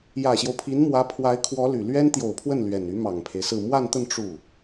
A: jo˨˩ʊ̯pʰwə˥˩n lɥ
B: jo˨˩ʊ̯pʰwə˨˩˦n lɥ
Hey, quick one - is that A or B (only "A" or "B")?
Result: A